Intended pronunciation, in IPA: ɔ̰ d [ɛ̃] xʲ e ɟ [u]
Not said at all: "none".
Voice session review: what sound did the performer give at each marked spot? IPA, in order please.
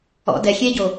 ɛ, o

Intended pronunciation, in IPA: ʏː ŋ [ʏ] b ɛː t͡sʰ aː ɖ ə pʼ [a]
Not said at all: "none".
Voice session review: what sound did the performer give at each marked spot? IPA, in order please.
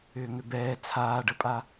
ʏ, a

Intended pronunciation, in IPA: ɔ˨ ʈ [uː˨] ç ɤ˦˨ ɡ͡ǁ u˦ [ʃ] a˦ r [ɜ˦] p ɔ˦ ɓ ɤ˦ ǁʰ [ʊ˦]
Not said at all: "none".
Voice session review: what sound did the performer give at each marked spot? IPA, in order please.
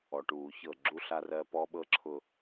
uː˨, ɬ, ɜ˦, ʊ˦

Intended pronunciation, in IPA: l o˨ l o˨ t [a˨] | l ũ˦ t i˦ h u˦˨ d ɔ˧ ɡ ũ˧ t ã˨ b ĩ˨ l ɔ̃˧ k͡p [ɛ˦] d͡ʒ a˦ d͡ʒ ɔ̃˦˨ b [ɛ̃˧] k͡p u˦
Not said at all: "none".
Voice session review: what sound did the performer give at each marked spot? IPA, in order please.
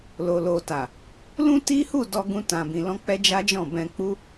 a˨, ɛ˦, ɛ̃˧

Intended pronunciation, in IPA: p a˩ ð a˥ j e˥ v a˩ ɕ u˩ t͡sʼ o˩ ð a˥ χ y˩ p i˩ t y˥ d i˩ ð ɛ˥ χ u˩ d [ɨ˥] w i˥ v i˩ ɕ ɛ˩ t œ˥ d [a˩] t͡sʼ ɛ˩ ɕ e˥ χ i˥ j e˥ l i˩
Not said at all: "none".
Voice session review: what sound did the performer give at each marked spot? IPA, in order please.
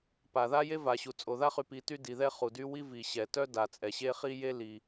y˥, a˩

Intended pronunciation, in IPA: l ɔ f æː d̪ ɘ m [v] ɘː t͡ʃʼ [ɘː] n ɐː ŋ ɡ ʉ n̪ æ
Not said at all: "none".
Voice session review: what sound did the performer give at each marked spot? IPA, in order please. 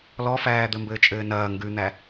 b, ɘː

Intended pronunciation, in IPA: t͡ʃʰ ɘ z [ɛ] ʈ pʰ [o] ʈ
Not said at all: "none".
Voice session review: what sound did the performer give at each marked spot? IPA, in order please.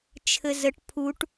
ə, u

